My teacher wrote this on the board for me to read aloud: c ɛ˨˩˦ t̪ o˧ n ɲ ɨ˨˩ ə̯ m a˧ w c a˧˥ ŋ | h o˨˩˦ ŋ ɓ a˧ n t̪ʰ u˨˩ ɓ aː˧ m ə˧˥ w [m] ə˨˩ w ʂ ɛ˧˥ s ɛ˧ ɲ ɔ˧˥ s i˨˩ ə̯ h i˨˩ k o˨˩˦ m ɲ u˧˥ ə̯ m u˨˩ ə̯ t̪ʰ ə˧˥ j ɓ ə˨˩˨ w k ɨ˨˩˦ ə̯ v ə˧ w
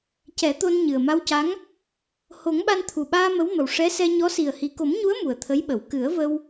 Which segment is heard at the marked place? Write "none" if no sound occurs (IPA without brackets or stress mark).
m